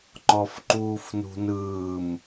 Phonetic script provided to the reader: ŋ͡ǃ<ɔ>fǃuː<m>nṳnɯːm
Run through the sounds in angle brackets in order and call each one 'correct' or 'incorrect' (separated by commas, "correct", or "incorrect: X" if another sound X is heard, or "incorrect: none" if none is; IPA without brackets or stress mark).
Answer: correct, incorrect: f